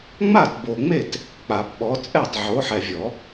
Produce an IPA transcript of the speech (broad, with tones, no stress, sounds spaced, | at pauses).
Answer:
ŋ͡m a˥˩ t b o˨ ŋ͡m e˥˩ t | k͡p a˨˩˦ p ɓ ɔ˨˦ t͡sʼ ɛ˥˩ tˤ ʕ o˨˦ ħ ɛ˨ vʲ ɔ˨˩˦